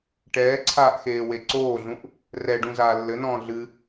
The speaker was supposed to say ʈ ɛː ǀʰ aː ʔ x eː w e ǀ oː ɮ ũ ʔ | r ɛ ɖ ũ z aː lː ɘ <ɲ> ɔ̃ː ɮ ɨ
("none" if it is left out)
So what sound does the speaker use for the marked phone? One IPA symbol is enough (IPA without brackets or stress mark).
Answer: n